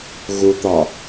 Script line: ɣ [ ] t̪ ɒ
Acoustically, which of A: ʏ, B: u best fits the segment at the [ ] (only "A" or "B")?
B